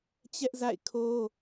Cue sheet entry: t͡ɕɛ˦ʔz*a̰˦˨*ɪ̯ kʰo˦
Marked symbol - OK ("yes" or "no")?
yes